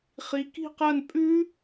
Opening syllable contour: rising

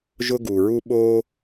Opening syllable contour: high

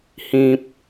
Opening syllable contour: low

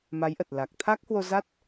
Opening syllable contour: rising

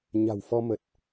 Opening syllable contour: low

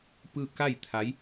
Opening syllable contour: falling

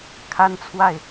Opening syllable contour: high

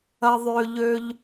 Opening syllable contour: high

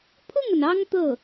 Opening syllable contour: falling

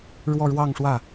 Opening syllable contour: falling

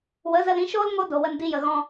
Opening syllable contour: rising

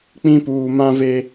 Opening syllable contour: high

